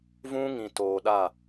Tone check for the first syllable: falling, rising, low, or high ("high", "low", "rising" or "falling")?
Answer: high